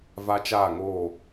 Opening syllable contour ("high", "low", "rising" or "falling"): high